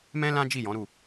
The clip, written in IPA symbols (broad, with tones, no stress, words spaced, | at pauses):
mɛ̃˦lã˦ d͡ʒi˦˨jɔ̃˨˦ɾu˦˨